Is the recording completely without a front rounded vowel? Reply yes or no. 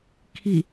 yes